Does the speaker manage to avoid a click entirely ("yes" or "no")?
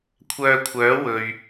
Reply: yes